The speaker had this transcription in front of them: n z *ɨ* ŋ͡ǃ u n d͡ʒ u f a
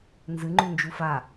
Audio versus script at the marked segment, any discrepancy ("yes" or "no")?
no